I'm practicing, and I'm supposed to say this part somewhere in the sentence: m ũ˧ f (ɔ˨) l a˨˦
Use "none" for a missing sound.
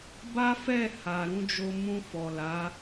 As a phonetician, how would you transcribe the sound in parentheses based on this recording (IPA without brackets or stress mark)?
ɔ˨